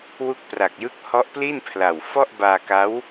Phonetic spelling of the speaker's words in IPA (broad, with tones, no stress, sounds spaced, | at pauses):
w u˦˥ k̚ p r a˨˩ k̚ j ɯ˦˥ k̚ h ɔ˦˥ ʔ p l i˥˩ n pʰ l a˨˩ w f ɔ˥˩ ʔ b aː˧ k a˦˥ w